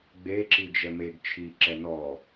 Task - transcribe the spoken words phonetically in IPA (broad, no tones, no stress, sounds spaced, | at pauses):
ɡ͡b e ǁ i d͡ʒ ɛ m e ɡ t͡ʃʰ i ǁ ɛ n ɔ